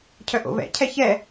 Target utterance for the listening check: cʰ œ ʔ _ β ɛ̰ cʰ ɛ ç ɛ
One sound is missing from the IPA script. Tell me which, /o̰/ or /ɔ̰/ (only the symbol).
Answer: o̰